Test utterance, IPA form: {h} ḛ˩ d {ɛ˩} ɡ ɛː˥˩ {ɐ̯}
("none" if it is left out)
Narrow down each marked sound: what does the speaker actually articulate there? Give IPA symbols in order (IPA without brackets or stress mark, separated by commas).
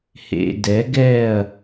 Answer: h, ɛ˩˥, ɐ̯